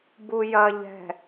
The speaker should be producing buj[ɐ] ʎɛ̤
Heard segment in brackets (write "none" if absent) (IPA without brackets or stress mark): ɐ